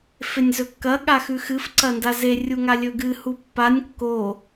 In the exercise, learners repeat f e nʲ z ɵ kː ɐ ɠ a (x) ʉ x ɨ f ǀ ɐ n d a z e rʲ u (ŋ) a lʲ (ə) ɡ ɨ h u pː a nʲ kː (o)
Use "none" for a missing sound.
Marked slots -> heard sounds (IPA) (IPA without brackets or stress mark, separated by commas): x, ŋ, ɵ, o